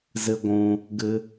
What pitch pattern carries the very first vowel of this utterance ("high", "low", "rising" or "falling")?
high